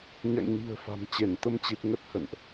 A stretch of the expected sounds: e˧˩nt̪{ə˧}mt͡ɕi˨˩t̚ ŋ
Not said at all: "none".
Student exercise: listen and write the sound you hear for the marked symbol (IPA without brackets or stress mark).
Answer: ə˧